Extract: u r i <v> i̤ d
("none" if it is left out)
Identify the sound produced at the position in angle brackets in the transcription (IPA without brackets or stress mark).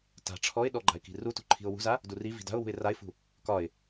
v